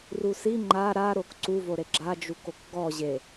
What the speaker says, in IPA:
r u s i ŋ͡ǃ a ɾ a ɾ o k ǀ u v o ɾ e ɡ͡ǁ a d͡ʒ u k o k ɡ ɔ ʑ e

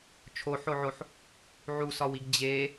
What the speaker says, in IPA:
t͡ʃʰ o ħ o ʕ o ħ | ʕ u s ɒ w i ɡ d͡ʑ e

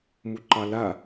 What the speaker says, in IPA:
m u ǃ ɑ l a

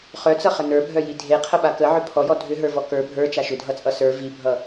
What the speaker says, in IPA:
χ œ t͡s ʌ χ ə n ə˞ bʱ œ j i dʱ e qʰ ə ɓ a k ə ʕ ʏ pʰ ɔ j ɔ dʱ ʏ ɦ ə˞ v ɔ k ə˞ bʱ ə˞ t͡ʃ a ʃ ʏ dʱ ʌ t͡sʼ ʌ s ə˞ v i bʱ ʌ

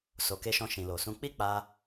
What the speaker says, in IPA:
s o˨ k e˧ ʃ ɔ̃˧ ʃ ĩ˨ l o˨ s ũ˧ k͡p i˦ k͡p a˧

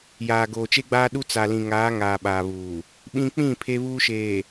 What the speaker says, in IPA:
j aː˨ ɡ oː˨ t͡ʃ e˦ ɡ͡b aː˦ ɗ u˦ t͡s a˨ l ĩ˨ ŋ aː˨˦ ŋ aː˨ ɓ aː˨ β uː˨ | ɓ ĩ˦ k͡p ĩ˦˨ pʰ e˦ β uː˦ ʃ eː˨

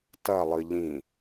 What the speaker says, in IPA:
t ɐ lˠ ɨ ʎ ĩ

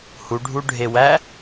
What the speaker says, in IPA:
h u ɖʱ u ɖʱ e w æ

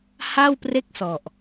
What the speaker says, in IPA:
h a˥˩ w p r e˥˩ k̚ s ɔ˨˩ ʔ

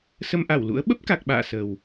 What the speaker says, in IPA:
s ə˧ m ʔ a˧˩ w l ṵ˧˥ ə̯ ɓ ə˦˥ p̚ k a˨˩ k̚ ɓ a̰ː˧˨ s ə˨˩ w

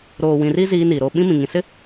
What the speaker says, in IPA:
ɾ oː˨ w ĩ˨ r i˦ z iː˦ n i˨ ɾ o˦ ɓ ĩ˦ m ĩ˨ ŋ ĩ˨ s ɪ˦

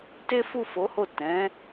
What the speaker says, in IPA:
t e˦ f u˦˨ f o˨˦ h o˦˨ t ɛ̃˨˦

